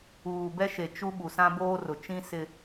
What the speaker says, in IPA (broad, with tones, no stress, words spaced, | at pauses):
uː˨bɛ˦ ʃe˨ t͡ʃu˦ ɓu˨sã˦boː˦rʊ˨ t͡ʃĩ˦ sɪ˦